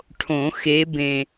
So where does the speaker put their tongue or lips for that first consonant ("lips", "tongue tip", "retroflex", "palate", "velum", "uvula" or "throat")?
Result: retroflex